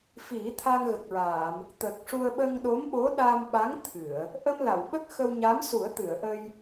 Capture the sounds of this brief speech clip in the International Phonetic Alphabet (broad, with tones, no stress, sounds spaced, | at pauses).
f i˨˩˦ t̪ʰ a˧ ŋ ɣ ə˨˩ k̚ ɹ aː˨˩˨ m | t̪ ə˨˩ k̚ ʂ u˧ ə̯ ɓ ə˧ ŋ ɗ o˧˥ m ɓ o˧˥ ɗ a˧ m ɓ a˧˥ ŋ t̪ʰ ɨ˨˩˨ ə̯ | ʔ ə˧ m l a˨˩˨ w ɓ ə˦˥ k̚ x ə˧ w ɲ a˧˥ m s u˨˩˦ ə̯ t̪ ɨ˨˩˨ ə̯ ʔ ə˧ j